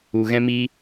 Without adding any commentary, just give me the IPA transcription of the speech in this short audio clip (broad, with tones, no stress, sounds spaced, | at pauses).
u˨ ɣ ɛ̃˦ m iː˦